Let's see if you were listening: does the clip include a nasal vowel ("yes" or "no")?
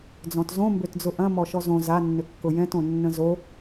yes